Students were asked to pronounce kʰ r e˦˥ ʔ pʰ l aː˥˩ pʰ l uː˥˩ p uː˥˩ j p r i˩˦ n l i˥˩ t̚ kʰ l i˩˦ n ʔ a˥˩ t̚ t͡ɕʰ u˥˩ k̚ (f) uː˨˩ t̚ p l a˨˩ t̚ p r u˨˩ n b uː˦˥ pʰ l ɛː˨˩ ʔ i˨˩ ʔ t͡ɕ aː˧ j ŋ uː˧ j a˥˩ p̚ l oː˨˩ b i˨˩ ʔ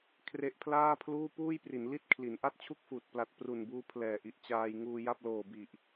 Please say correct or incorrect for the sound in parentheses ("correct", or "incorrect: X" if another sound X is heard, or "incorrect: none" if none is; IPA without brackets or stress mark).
correct